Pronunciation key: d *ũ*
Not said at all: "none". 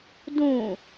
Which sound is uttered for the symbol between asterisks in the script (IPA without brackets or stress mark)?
ũ